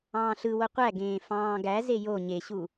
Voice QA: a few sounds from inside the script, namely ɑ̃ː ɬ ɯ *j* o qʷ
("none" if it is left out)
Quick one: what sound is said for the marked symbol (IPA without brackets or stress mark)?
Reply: w